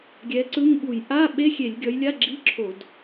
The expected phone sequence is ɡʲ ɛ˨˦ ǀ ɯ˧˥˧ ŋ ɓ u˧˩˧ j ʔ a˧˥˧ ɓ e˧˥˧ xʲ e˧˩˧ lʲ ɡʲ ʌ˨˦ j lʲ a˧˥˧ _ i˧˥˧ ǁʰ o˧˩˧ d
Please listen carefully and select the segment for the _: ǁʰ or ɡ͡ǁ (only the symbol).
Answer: ɡ͡ǁ